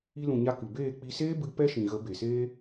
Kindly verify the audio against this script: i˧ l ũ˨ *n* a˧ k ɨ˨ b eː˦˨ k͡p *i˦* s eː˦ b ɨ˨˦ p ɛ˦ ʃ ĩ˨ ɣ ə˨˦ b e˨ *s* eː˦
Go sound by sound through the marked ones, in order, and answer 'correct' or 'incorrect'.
incorrect: ɲ, incorrect: i˧, correct

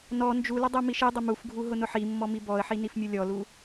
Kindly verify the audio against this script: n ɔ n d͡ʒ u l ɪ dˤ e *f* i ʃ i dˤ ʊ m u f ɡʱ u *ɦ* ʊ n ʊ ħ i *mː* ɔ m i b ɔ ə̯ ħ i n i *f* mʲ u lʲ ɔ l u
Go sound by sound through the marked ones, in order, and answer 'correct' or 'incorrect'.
incorrect: m, correct, correct, correct

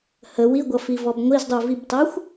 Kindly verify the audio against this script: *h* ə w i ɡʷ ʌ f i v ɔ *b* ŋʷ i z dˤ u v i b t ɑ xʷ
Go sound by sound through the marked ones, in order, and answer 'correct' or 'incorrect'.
correct, correct

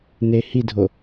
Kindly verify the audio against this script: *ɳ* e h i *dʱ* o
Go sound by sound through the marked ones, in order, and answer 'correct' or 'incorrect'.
incorrect: n, correct

